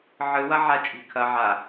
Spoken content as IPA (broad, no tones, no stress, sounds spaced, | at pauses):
ʕ ɨ w ɐ ʕ a t͡ʃʼ i̤ kʰ ɐ ʕ a